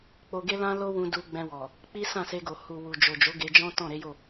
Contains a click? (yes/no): no